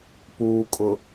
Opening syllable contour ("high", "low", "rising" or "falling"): low